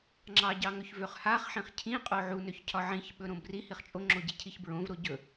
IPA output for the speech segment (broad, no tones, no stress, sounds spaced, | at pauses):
ŋ͡ǁ ɑ ɟ ɑ ŋ ɵ ç v ø χ h a χ ħ ĩ χ cʰ ĩ qʼ o ʕ u n ø ç cʰ ɒ ʕ ĩ ç ɓ ɵ ɾ õ b r i h i χ t͡ʃʼ o ŋ͡ǁ o ɟ i cʰ i ç b ɹ õ v ɾ o ɟ ɵ